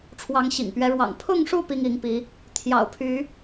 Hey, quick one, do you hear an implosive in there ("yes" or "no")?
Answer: no